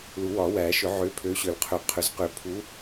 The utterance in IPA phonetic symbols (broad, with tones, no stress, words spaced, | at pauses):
lu˨˩˦wɒ˨˩˦wæ˨˩˦ʃʏ˨˩˦ ʕø˨˦ pʰø˨˦ɕø˨˩˦lqʰø˨˩˦qʰʏ˨˩˦z qʏ˨˩˦pʰu˨˦